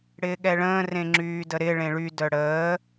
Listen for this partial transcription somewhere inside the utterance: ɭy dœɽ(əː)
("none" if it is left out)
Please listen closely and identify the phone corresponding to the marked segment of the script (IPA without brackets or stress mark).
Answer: əː